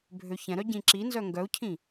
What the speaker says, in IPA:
bʱ ø ç ɛ̃ ɾ œ ɟ ĩ ǁ i n z œ ŋ ɡ œ u̯ cʰ ĩ

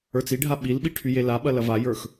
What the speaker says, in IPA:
ə˞ t͡s i ɖʱ a ɓ i l ɓ i ʈʰ y j e l a ɓ ɐ l ɐ v a j ə˞ x

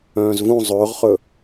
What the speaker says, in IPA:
œ̃ː z v ũ zˤ ɵː ʁ χ ɵ

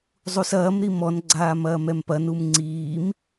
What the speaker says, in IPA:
zˤ u s ɐː m ɾ i m ɔ n ɡ͡ǀ aː m ɐː m ɛ m p ɐ n u m ŋ͡ǀ iː m

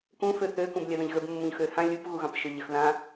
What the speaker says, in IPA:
k ũ f ø θ ø k ũ b lʲ a ð ə̃ ʎ ɣ ə b mː ũ ʎ x ø h ã lʲ u p ɣ u ɣ ɑ̃ p ʃ ø ʎ ə x ð ã

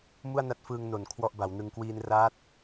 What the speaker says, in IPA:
m u˥˩ a̯ n a˦˥ t̚ f ɯː˧ ŋ n o˨˩ n kʰ w ɔ˥˩ ʔ b a˩˦ w n ɯ˧ ŋ k w iː˧ n r aː˦˥ t̚

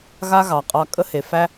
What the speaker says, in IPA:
ɣ a˦ ɣ ɑ˨ qʼ ɑ˧ kʼ ə˦ h e˨ f æ˦

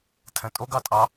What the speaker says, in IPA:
tʰ ɛ̃ tʼ o ɡ ɑ tʼ ɑ

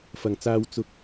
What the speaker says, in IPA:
f ɐ˨ ŋ t͡s aː˧ w t͡s ʊ˧ k̚

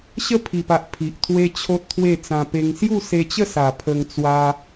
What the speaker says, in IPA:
ɕ ə˦ pʰ i˨˩ p a˨ ʔ pʰ i˨ ʔ t̪ʰ w e˦ t͡ɕʰ o˦ t̚ t̪ʰ w e˥˧ t͡s ã˧ p e˧ ŋ s j u˥˧ s e˧ t͡ɕ ə˥˧ s a˨˩ pʰ ə˧ ŋ t͡s w a˧

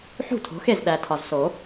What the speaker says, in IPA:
ħ ṳ˥˩ tʰ o̤˩˥ x e˥˩ z ɗ æ˨˩ tʰ ɒ˨˩ z s o˨˩˦

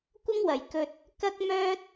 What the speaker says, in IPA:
kʷ ɐ˥ ŋ w ɐ˨ j k ɵ˧ t̚ | k ɐ˥ k̚ m œː˥ t̚

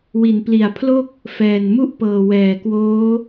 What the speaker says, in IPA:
w i˩˦ n p l i˨˩ a̯ pʰ l o˥˩ k̚ | f ɛː˨˩ n m u˥˩ ʔ p ɤː˨˩ w ɛː˨˩ k w oː˦˥

